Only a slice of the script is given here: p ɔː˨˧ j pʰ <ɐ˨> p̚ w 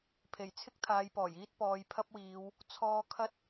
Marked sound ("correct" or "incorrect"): incorrect